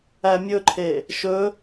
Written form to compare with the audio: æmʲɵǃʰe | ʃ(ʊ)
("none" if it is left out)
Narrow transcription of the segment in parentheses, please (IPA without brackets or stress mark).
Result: ɵ